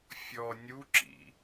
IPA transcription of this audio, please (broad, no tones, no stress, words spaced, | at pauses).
fʲɔ nʲuǁḭ